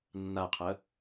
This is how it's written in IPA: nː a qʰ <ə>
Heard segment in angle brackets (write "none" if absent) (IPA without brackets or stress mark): ə